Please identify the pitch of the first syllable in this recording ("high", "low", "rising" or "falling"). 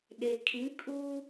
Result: low